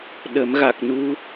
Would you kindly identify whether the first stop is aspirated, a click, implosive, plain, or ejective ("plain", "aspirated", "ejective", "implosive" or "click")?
implosive